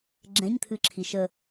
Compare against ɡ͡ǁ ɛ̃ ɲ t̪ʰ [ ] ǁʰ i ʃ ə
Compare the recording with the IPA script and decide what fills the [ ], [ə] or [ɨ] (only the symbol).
ɨ